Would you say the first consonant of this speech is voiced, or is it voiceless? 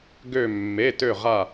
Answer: voiced